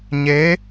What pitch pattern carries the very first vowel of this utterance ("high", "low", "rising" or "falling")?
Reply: rising